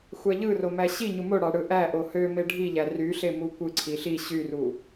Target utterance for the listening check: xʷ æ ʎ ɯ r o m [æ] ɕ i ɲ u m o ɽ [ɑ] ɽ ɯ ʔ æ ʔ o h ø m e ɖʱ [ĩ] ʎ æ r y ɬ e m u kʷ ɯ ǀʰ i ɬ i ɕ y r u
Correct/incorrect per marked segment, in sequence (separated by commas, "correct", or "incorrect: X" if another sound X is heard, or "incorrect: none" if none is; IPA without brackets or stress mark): correct, correct, incorrect: i